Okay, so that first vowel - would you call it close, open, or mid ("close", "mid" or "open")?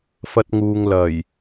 open